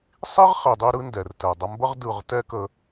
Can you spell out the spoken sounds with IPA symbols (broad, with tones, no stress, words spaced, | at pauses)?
sˤi˦ʁχi˨dˤi˧ ɾɯ˦ndɛ˨rtɛ˨ dˤə˧mbə˦ʁ dɯ˦˨ʁ tɛ˦kə˧